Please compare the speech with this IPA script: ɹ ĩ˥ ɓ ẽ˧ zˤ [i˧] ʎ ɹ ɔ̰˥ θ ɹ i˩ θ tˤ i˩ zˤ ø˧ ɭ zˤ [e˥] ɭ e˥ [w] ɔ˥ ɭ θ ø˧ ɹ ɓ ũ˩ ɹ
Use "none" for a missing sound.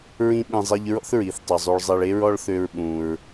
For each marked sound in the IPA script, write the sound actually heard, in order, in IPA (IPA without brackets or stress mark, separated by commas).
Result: i˧, e˧, ɹ